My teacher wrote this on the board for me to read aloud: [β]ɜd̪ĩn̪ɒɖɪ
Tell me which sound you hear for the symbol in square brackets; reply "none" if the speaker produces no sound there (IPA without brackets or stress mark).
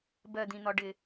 b